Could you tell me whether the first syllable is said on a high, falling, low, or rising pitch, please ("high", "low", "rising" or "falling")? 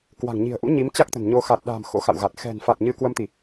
low